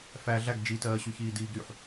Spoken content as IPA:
f æ ɮ æ ɡ d͡ʒ i t ɜː ɕ y ç iː d iː ɡ ɾ y ħ

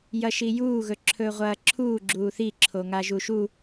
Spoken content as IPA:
j ɐ ʃ i j uː ɣ ɵ ǁʰ ɵː ʁʷ ɐː ǁʰ uː ɡ͡ǁ uː θ i ǁʰ o ŋ a ʒ u ʃ u

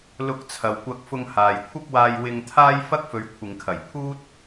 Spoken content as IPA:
l ʊ˧ k̚ t͡sʰ ɐ˨ w kʷ ɐ˧ k̚ f ʊ˧ ŋ h aː˨ j kʷʰ ɐ˥ p̚ w aː˧ j w ɪ˧ ŋ t̪ʰ aː˥ j f ɐ˥ k̚ f ɵ˨˧ ɥ kʷʰ ɪ˨ ŋ kʰ ɐ˨˩ j pʰ uː˥ t̚

